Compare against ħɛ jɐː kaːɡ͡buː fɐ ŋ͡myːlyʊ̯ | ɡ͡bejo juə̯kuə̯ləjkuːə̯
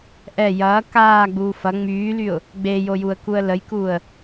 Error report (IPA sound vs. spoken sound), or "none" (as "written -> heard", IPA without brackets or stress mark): ħ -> ʔ